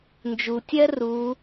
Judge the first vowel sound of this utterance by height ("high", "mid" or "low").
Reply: high